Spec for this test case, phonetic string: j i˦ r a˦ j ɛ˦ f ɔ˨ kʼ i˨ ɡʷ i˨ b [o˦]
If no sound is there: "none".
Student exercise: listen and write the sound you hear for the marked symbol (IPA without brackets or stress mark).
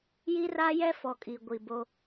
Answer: o˦